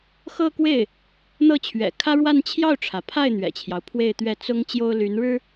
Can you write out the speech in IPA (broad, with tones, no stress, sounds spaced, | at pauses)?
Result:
x ɤ˥˧ k w e˥˩ ɪ̯ | n̪ ɤ˥˩ t͡ɕʰ ɥ ɛ̰˨˩ kʰ ä˥ ɻ w a˥˧ n t͡ɕʰ j ɑ˥˩ ʊ̯ ʈ͡ʂʰ ä˩ pʰ a˥˩ ɪ̯ n̪ ɥ ɛ̰˨˩ t͡ɕʰ j ɑ˦ ʊ̯ pʰ w e˥˧ ɪ̯ t̪ ɥ ɛ˥˩ t͡s ʊ˥ ŋ t͡ɕ j o˥ ʊ̯ l y˧˥ n ɻ ɻ̩˥